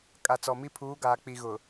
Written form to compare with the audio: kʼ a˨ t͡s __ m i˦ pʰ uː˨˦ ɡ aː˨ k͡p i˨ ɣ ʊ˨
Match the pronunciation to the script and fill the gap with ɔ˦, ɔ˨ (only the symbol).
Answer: ɔ˨